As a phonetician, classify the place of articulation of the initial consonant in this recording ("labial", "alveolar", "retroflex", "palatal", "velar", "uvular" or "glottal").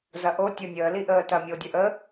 alveolar